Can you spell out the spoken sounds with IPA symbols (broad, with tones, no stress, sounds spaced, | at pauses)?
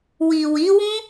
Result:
w i˨ w i˨˦ w ũ˦